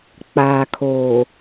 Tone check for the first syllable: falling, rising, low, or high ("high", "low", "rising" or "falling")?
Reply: low